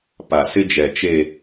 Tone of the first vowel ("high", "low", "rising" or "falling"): low